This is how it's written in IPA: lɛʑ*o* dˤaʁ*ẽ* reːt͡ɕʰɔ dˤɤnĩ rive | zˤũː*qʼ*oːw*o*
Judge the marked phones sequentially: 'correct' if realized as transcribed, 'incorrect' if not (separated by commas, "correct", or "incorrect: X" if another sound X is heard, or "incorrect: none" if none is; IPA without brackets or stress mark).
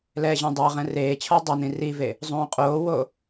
incorrect: õ, incorrect: ɛ̃, correct, correct